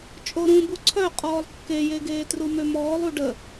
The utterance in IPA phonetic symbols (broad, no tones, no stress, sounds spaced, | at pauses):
t͡ʃʼ o ɾ ũ b u ǀʰ œ qʼ ɔː lˠ kː e j e ɡ eː t r u m ø m ɔː lˠ u ɖ ə